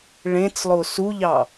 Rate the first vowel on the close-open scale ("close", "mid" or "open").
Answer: mid